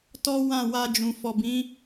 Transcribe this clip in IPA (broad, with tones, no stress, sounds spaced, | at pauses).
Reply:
t ɔ˦ w ã˦˨ w a˧ d͡ʒ ũ˨ f ɔ˨ b ĩ˨˦